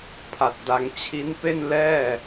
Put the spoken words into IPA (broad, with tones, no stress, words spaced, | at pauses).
pʰa˨˩t̚da˧ŋ t͡ɕʰi˦˥npe˥˩n lɛː˥˩